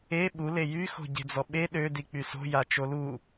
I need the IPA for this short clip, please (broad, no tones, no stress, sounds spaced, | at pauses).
e ɓ u l e j y x o̤ ɟ e̤ d͡z ɔ ɓ e ɗ ø d i k͡p y s o̤ j a t͡ʃ o l u